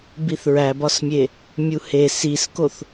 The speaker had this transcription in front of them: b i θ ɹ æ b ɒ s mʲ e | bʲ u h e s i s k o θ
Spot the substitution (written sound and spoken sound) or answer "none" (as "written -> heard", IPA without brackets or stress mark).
bʲ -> mʲ